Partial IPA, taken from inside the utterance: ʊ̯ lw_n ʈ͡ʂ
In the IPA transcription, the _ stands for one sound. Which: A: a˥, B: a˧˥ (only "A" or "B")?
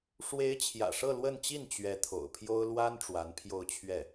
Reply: A